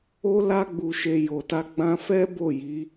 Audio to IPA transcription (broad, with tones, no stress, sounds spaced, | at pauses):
o˧ l a˧ ɡ͡b u˨ ʃ e˨ j o˨ t a˧ ɡ͡b ã˧ f ɛ˦ b o˦˨ j i˨˦